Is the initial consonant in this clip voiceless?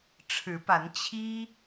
yes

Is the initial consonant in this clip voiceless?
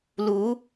no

